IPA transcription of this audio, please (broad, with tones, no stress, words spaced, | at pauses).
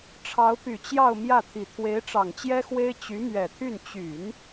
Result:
ʈ͡ʂʰɑ˧˥ʊ̯py˨˩t͡ɕjɑ˥˧ʊ̯ mjä˥˩t̪ʰi˨˩ t̪ʰwe˧˥ɪ̯ʈ͡ʂɑ˨˩ŋt͡ɕjɛ˥xwe˥ɪ̯ t͡ɕy˧˥mɥɛ˨˩t̪ʰy˥˩n t͡ɕy˨˩˦n